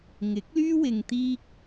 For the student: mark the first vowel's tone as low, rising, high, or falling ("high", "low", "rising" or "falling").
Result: rising